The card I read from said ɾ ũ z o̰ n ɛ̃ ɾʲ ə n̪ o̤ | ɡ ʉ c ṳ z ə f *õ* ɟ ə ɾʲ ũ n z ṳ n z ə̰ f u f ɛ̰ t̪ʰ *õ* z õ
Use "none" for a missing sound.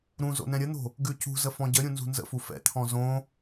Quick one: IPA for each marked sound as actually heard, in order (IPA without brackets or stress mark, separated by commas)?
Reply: ɔ̃, ɔ̃